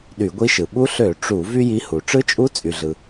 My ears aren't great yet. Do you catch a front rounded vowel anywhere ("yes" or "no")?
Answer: yes